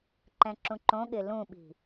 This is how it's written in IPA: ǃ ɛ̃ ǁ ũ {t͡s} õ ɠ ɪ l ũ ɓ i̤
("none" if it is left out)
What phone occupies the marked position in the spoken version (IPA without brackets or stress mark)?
ǃ